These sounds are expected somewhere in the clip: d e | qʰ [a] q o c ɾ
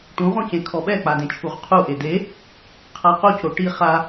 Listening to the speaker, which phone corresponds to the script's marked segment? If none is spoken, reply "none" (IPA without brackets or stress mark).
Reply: a